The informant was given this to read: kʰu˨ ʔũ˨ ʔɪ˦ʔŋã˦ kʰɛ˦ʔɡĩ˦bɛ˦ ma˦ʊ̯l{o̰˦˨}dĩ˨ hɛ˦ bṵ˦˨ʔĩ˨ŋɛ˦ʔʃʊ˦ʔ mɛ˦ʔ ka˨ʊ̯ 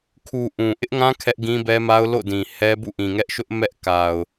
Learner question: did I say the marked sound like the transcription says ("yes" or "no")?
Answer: yes